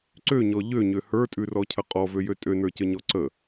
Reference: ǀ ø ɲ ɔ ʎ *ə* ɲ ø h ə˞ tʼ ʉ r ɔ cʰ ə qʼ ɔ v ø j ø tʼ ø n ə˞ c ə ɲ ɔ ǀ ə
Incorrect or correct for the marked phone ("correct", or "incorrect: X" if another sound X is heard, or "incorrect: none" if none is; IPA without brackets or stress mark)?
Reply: incorrect: ø